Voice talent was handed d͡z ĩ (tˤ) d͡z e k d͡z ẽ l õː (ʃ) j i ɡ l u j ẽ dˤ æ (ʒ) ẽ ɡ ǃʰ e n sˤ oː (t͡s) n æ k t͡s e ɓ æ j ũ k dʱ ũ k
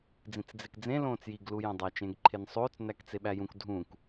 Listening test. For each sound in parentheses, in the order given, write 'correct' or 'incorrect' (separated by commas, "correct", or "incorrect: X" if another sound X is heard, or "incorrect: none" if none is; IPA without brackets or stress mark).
incorrect: t͡s, incorrect: t͡s, incorrect: t͡ʃ, correct